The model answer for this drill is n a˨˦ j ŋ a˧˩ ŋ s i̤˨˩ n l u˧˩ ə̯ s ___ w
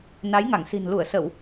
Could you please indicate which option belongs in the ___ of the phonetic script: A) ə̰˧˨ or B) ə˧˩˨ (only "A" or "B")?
B